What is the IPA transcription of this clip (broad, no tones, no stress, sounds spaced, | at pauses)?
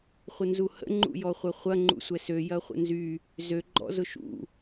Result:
χʷ ə n z u h ə̰ ŋ͡ǃ ṵ j ɔ χʷ ɐ χʷ ɐ ŋ͡ǃ ṵ sʷ ɛ s ø j ɐ χʷ ə̰ n z y | z ø ɡ͡ǃ ɔ̰ z ʊ ʃ ṵ